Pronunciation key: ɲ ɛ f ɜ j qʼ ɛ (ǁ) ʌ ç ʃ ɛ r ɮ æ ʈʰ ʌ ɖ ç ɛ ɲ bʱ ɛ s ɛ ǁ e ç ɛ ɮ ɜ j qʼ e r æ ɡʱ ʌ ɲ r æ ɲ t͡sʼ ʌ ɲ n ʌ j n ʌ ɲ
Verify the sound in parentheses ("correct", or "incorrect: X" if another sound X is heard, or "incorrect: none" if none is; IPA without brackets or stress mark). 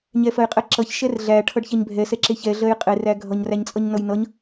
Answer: correct